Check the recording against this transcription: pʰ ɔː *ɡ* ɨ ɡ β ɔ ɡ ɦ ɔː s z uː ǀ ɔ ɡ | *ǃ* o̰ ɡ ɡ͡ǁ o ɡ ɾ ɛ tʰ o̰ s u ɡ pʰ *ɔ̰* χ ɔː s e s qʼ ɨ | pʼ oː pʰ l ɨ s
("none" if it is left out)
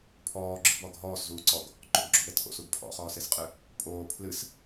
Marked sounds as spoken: ɡ͡ǁ, ǃ, ɔ̰

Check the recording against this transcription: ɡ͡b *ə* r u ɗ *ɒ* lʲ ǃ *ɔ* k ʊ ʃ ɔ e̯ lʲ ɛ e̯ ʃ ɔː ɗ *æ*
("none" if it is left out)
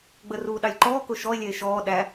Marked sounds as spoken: ə, ɑ, ɔː, æ

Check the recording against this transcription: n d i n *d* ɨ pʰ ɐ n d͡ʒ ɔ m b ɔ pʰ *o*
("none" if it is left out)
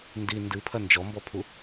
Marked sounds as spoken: d, u

